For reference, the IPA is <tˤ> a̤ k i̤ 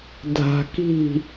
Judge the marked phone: incorrect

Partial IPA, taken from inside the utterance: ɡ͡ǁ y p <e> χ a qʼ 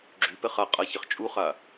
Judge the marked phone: incorrect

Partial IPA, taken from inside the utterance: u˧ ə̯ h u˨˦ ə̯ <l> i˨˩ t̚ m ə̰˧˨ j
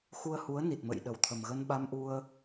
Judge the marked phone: incorrect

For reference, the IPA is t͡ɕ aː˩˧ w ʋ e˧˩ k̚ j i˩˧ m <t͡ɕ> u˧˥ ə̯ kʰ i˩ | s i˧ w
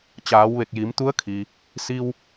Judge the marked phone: incorrect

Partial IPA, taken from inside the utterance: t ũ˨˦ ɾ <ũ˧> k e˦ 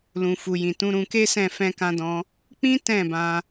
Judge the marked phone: correct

